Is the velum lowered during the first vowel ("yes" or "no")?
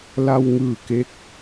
no